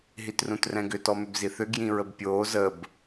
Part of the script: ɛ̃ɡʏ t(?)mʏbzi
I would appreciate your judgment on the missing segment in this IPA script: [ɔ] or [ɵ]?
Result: ɔ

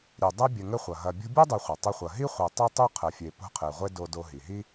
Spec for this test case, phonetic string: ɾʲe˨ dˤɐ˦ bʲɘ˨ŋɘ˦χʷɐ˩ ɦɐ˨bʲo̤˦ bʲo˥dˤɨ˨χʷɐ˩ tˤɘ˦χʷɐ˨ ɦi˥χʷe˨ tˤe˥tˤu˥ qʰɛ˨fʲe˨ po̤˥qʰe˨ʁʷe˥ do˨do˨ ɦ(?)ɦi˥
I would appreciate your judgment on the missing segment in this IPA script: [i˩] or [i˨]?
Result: i˩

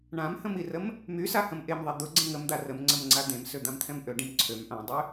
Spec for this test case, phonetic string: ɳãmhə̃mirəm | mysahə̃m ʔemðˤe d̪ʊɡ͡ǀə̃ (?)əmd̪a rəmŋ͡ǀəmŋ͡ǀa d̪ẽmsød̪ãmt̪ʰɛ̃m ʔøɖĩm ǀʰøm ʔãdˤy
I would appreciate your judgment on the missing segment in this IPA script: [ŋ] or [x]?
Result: ŋ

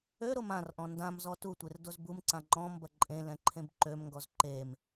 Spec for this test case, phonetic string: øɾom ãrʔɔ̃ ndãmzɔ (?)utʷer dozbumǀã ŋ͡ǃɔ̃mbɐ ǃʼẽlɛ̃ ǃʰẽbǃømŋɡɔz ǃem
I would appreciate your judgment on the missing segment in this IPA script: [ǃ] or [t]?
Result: t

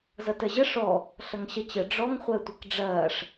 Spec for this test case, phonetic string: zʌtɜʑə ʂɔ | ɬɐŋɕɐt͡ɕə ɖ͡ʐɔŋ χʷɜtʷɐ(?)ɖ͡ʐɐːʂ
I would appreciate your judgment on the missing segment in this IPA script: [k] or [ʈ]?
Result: k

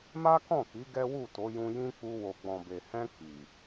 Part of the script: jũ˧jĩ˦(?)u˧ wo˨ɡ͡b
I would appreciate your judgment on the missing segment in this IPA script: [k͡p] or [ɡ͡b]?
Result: k͡p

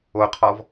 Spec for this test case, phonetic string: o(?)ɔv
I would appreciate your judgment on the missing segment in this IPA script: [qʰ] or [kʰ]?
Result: qʰ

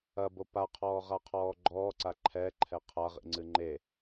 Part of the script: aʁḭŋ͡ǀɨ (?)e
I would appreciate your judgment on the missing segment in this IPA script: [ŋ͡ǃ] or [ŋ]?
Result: ŋ͡ǃ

